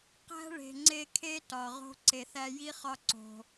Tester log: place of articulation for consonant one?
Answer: uvular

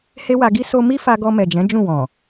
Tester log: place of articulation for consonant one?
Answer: glottal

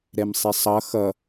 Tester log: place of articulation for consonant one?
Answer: alveolar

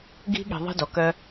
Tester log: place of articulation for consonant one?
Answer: velar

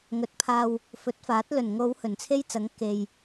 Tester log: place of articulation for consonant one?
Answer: velar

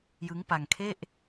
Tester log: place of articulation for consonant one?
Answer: palatal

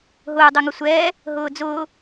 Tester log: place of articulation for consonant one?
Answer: glottal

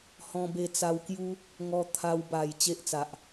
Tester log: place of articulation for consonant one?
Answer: glottal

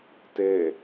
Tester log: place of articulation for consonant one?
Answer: alveolar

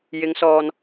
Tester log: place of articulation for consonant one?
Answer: palatal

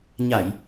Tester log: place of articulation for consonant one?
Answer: palatal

